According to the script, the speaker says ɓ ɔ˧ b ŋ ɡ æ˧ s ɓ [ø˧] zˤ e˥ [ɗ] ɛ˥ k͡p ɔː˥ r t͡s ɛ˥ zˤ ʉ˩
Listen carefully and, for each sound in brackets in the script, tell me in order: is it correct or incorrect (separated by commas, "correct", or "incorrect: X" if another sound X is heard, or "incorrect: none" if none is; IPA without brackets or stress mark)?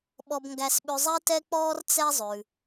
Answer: incorrect: ʉ˧, incorrect: t